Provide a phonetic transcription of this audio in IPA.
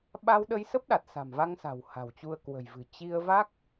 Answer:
ɓ a˧ w ɗ ə˧ j s ə˦˥ p̚ ɗ a˨˩ t̚ s a̤˨˩ m v a˧ ŋ s a̤˨˩ w h a̤˨˩ w t͡ɕ u˧ ə̯ k w ə̤˨˩ j v ɨ̤˨˩ t͡ɕ i˧ ə̯ v a˦˥ k̚

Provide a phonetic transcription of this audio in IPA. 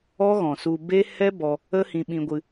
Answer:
ɔ˦ ɣ ɔ̃˨ s u˧ b e˦ h ɛ˦ b ɔ˧ | ə˦ h ĩ˧ ɓ ĩ˧ ɡʷ ɨ˧

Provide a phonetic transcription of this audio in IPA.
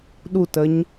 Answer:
ɗ u t ə ɲ

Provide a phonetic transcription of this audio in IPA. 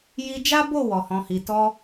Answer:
j i˧ d͡ʒ a˦ b o˦˨ w ɔ˨ h ɔ̃˨ h i˨ t ɔ˧

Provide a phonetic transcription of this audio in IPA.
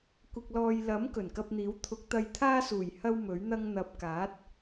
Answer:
kʷ ɪ˨ k̚ l ɔː˨ j l ɐ˨˥ m k ɵ˨˩ n k ɐ˧ p̚ n̪ iː˨˥ w t̪ʰ ʊ˨˥ k̚ t̪ ɐ˧ j t̪ʰ aː˥ s uː˨˩ j h ɐ˥ w m ɵ˨˥ ɥ n̪ ɐ˥ ŋ n̪ ɐ˧ p̚ k aː˨˥ t̚

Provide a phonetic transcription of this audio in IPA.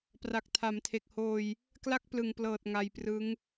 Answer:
p r a˨˩ k̚ tʰ a˩˦ m tʰ e˨˩ k̚ h oː˧ j | k l a˥˩ k̚ p l ɯ˨˩ ŋ p l ɤː˨˩ t̚ ŋ a˧ j p r ɯ˦˥ ŋ

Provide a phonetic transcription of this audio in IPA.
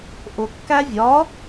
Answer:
ʔ ʊ kː æ vʲ ɒ

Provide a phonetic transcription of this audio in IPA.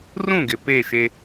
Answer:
r ũ˦˨ ɡ ɪ˨ p e˦˨ ʃ e˦

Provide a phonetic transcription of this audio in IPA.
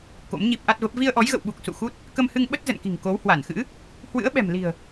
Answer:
k o̰˧˥ m ɲ i˦˥ p̚ ʔ a˦˥ t̚ v ə˦˥ p̚ v i˧ ə̯ ʔ ɔ˨˦ j ɣ ə̰˧˨ w ɓ u˨˩ k̚ s ṵ˧˨ x u˦˥ t̚ | k ə˧ m h ɨ˧ ŋ ɓ ə˦˥ t̚ z ə̰˧˨ n k i̤˨˩ ŋ k o˨˦ w h w a˧˩ n x ɨ̰˧˥ | h w ɨ̰˧˥ ə̯ ɓ ɛ̤˨˩ m l i̤˨˩ ə̯

